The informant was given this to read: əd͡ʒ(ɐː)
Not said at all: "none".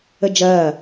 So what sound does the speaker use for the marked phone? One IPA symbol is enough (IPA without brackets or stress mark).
ɐː